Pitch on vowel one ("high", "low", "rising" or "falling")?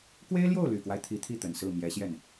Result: high